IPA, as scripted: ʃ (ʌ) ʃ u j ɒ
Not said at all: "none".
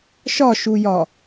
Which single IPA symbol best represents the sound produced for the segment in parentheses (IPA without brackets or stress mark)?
ɒ